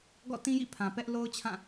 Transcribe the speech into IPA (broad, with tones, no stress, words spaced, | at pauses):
ɡɔ̰˦˨tĩ˦jḭ˦˨ pʰã˨pɛ˦ʔ lo˦ʊ̯t͡ɕʰã˦˨